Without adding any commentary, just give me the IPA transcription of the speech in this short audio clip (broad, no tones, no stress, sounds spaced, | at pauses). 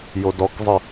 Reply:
j o d ɔ k zˤ ə